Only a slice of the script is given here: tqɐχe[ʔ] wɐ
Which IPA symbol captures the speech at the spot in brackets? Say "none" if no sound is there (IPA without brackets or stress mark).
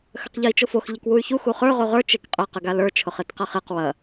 q